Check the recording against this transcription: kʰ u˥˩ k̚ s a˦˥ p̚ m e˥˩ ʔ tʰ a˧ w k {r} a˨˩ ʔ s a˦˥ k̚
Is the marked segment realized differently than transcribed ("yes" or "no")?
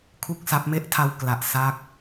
yes